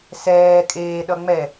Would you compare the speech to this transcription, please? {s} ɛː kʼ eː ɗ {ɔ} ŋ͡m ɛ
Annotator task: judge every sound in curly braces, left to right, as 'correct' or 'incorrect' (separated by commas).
correct, incorrect